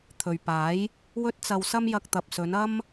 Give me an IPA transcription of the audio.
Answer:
t̪ʰ ɵ˨ ɥ p aː˨˥ j | w ɵ˥ t̚ t͡s ɐ˧ w s ɐ˥ m j ɐ˧ k̚ t̪ ɐ˨ p̚ s ɵ˨˧ n ɐ˥ m

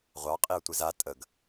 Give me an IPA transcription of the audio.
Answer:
ʁʷ ɑ qʼ i ʊ̯ tʷ i z a tʼ ə ɡ

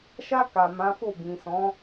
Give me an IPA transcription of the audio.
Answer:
ʃ a˧ k a˨ m ã˨˦ f o˦˨ b ĩ˨ s ɔ̃˨˦

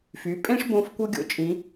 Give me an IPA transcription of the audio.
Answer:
f y˩˧ pʼ ẽ˥ ʂ b õ˧ f kʷ ɤ˥ ɡʲ o̰˩˧ t͡ʃʼ ĩ˩˧

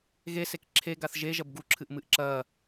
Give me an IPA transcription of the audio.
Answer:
ɣ e s e k ǁʰ e ɡ a θ ʒ e ʒ ɐ b ɡ u ǁʰ ɨ ʔ m ɨ ʔ ǁ ɐ

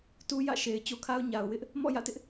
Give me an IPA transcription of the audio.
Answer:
t u˦ j ä̰˦˨ ʃ e˨ ɪ̯ t͡ɕ o˦ kʰ a˦ ʊ̯ ɲ a˨ ʊ̯ w ɪ˦ ʔ | m ɔ̰˦˨ j ä̰˦˨ t ɪ˦ ʔ

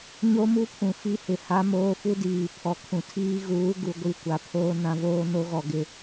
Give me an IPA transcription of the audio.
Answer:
ɲ o˦ m u˦ pʰ ũ˨ f i˦ h ɪ˨ h a˦ m oː˦ f u˦ d iː˨ pʰ ɔ˨ kʰ ũ˨ tʰ iː˦ ɣ uː˨˦ ɡ u˨ ɡʷ i˦˨ kʷ a˨ pʰ oː˦ n ã˨˦ v oː˦ n o˦ ɣ ɔ˨ ɡ ɪ˦

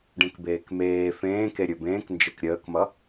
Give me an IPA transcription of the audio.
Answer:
ɖ ẽ k b eː k m eː f ẽː k e ɾʲ ɵ b ẽː k n d͡ʒ e k ɾʲ əː k m ʌ

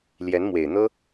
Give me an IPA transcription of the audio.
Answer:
l j ɛ˧˥ n m w e˨˩ ɪ̯ n̪ ɤ˥

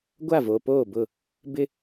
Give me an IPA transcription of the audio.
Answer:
ɡʷ a˦˨ v oː˨ p oː˦˨ b ʊ˦˨ | b ɪ˦

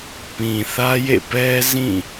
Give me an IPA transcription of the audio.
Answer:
p ĩ˨ θ ä˦ j ḛ˦˨ p ɛ˦ z ĩ˦˨

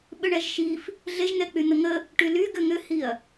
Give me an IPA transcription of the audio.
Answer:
ɓ ʏ ɳ ɛ ʒ ʃ i f | ɮ e ʒ n̪ ɛ k͡p y n̪ ə ŋ ə | ʈ y l y ɡ ʏ ŋ ʏ h i ɐ̯

